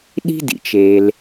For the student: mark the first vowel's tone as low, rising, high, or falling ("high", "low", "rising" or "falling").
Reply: high